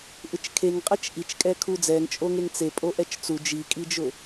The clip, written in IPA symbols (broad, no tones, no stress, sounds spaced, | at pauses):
ʔ ɪ t͡ʃ kʰ e ŋ qʼ ɛ t͡ʃ ʔ i t͡ʃ kʼ ɛ kʰ u d͡z ɛ ŋ t͡ʃʼ o ŋ e ŋ t͡s e pʼ o ʔ ɛ t͡ʃ t͡s u d͡ʒ i kʼ i d͡ʒ ʊ